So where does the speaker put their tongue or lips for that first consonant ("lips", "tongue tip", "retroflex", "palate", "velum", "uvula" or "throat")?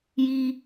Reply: palate